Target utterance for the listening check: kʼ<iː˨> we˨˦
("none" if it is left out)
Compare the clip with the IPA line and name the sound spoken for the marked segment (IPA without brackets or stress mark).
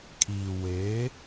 iː˨